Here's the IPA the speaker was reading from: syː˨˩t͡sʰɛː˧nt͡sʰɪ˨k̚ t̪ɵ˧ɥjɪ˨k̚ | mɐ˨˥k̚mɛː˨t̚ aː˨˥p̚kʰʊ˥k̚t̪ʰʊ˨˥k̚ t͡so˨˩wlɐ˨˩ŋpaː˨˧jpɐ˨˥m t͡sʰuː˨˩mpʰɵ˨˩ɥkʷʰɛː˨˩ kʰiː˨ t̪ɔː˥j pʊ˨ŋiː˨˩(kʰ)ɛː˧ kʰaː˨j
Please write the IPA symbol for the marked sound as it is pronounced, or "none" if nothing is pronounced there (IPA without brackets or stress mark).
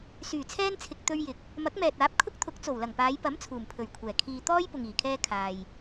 kʰ